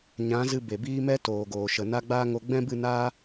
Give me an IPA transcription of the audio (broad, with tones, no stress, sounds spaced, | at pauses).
ɲ ã˨˦ z ɨ˧ b e˨ b iː˦ m ɛ˦ t oː˨ ɡ oː˨ ʃ ə˨ n a˦ ɡ͡b aː˦ ŋ o˧ ɡ͡b ɛ̃˦ b ɨ˦˨ n aː˦